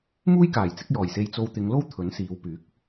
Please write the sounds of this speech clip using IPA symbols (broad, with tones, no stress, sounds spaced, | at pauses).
m uː˥ j k aː˨˩ j t͡s ɪ˨˥ k̚ j ɔː˨˩ j s e˧ j t͡s o˧ w t̪ ɪ˨˧ ŋ l o˥ w t̪ʰ ɵ˨˥ n s iː˨˧ w p yː˨˥ k̚